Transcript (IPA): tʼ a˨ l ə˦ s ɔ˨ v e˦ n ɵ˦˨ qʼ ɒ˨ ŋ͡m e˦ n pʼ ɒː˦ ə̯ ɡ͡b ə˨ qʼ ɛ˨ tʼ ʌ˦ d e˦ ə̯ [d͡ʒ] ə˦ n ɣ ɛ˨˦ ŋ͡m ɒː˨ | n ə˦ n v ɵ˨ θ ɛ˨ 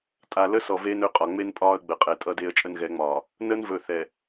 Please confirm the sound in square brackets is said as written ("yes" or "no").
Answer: no